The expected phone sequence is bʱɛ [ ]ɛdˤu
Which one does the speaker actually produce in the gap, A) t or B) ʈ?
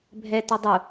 A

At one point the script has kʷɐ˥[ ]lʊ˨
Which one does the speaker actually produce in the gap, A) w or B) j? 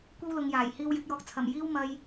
A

